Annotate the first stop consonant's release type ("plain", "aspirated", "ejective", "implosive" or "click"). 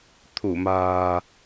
aspirated